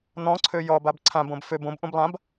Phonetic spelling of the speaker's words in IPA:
n̪ ɔ̃ ǀʰ ø j ɔ b a b ǀʰ ã b õ b f ø b õ b ʔ ũ b lˠ ã b

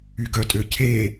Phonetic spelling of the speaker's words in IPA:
y ɡ œ tʼ ø cʰ e

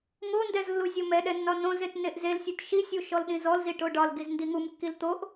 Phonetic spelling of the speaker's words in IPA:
ŋ o n d ɛ z lː u zʲ o m ɛ ɗ ɛ nː ɒ n õ z e t n e ʔ z e l sʲ u t ʃ i sʲ u ʃ ɔ l ɗ ĩ z ɔ l z i ʈ o ɖ ɒ l ɡ i z n d i ŋ u m kː i l t̪ o ʔ

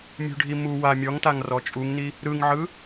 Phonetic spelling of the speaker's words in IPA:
mʲ ṳ ɖʱ i m u w a mʲ ɔ ŋ t a ŋ r ɔ t͡ʃʼ u ŋ n i | ɾ ɯ ŋ ʕ ɯ

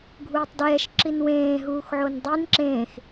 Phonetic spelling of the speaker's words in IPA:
ɡʱ uː tˤ d ɛː ʃ ǁ i n w ẽː ɦ uː x ʕ o n dˤ i n ǁ ẽː x

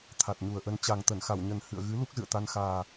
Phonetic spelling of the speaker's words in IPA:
t̪ʰ a˨˩ t̚ ɲ u˨˩ ə̯ ʔ ə˧ n t͡ɕ a˨˩ ŋ t̪ ə˧˩ n x a˧˩ w ɲ ə˨˩ n h ɨ̰˧˨ ə̯ ɣ ɨ˨˦ l u˦˥ k̚ z ɨ̰˧˨ ə̯ t̪ a˧ n x aː˨˩

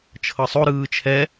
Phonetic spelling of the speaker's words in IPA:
t͡ʃʰ ɤ sˤ o ɾ ɯː t͡ʃʰ ɛ

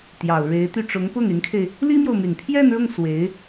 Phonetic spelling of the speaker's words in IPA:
t̪ j ɑ˨˩ ʊ̯ ɻ e˧˥ ɪ̯ t̪ y˥˩ ʈ͡ʂ ʊ˧˥ ŋ p ʊ˥˩ ŋ y˧˥ n kʰ e˧ ɪ̯ | l i˥ m j o˨ ʊ̯ m y˨˩ n pʰ j ɛ˥˧ n ɻ ʊ˥˩ ŋ s w e˧˥ ɪ̯

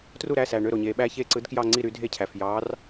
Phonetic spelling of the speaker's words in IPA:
t r u˦˨ ɾ æ˩˧˩ s æ˩ ɳ ø˩˧˩ ɾ o˩ ɲ e˩ ɓ æ˦˨ ç e˦˨ ǀ ɯ˨˦ d k j ɑ˦˨ ŋ͡ǀ i˦˨ ɾ y˨˦ dʱ e˦˨ cʰ æ˩ f j ɑ˨˦ r

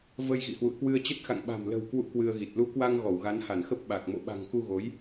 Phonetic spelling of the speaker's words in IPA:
v ə˧ j ɣ ḭ˧˨ h w ṵ˧˨ ə̯ k w ɨ˧ ə̯ t͡ɕ ə˦˥ t̚ x a̰˧˨ ŋ ɓ a̤˨˩ m l ə̤˨˩ w k w ṵ˧˨ k w ɨ˧ ə̯ ɣ i˨˩ t̚ l u˨˦ k w a˧ ŋ ɣ ɔ˧˩ w ɣ a˨˦ n h a˧˩ n x ə˦˥ p̚ ɓ a˨˩ k̚ m o̰˧˨ ɓ a̤˨˩ ŋ k u˧ ɣ o˨˦ j

